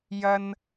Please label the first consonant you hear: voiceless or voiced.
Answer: voiced